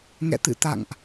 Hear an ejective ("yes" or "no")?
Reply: no